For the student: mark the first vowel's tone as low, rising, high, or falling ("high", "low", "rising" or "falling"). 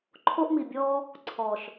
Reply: high